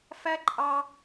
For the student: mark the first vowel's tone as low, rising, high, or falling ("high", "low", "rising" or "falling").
high